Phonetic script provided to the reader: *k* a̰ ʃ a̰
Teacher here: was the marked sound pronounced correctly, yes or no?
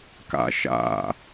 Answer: yes